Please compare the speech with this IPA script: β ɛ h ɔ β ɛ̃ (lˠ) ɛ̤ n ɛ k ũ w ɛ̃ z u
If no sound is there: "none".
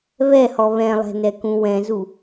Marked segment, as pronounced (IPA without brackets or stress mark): lˠ